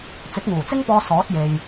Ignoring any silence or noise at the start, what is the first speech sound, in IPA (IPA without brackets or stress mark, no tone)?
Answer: t͡s